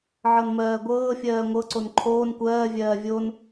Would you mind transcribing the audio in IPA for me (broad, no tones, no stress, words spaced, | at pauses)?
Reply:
ʕɤnmɜːɡʷɤːfʲɜː ŋʷɤǀon ǃʰoːn kʷɜːvʲɜː vʲon